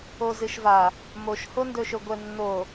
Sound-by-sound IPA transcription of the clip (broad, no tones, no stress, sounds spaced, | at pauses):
o z ɨ ʃ v a | m o ʃ h o n d ɵ ʃ ɵ ɡʷ ɛ nː o